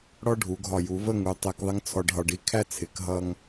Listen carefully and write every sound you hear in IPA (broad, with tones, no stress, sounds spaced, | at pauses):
ɽ ɔ˥ ɖʱ u˩˧ ɡʱ ɒ˧˩ j u˩˧ v ə˥˧ ŋ u˩˧ tˤ ɛ˧ k ðˤ ɪ˥ ŋ t͡sʰ ɔ˧ ɖ ɦ ɒ˧ ɖ i˧ kʰ æ˥ t͡sʰ ɪ˩˧ k ɦ ʌ˧ ŋ